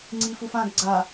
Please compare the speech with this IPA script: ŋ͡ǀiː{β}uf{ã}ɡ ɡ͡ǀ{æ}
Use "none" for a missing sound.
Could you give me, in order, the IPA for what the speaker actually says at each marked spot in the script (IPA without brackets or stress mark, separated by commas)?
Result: f, ã, a